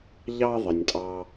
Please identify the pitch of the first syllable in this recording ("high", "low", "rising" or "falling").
high